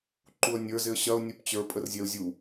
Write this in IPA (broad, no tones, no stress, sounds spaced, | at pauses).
ǃ u ə̯ nʲ ə˞ z ɪ ə̯ ɕ ɐ ʊ̯ nʲ u p t͡ɕ ə˞ pʼ ə r zʲ ɛ ʊ̯ zʲ u